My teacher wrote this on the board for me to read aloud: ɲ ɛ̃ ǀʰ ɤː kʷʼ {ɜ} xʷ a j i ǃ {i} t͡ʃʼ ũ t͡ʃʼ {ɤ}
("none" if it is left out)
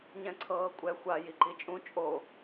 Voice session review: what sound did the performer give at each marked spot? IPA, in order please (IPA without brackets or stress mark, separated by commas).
ɛ, i, o